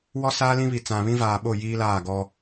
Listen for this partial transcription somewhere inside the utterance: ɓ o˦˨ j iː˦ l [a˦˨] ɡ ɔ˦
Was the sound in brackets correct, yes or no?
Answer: no